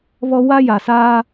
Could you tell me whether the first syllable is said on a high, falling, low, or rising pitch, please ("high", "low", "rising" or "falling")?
high